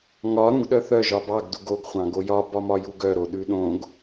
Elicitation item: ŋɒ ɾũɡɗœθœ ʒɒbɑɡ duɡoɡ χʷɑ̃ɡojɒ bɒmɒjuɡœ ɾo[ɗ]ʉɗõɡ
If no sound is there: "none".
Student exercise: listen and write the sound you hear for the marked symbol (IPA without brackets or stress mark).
ɗ